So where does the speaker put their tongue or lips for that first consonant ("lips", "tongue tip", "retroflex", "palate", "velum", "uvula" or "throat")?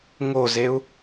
velum